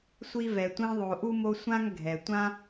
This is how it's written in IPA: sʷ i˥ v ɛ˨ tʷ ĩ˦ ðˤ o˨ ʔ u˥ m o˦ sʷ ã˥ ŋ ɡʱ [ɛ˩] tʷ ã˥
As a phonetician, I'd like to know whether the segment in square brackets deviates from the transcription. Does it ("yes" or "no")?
no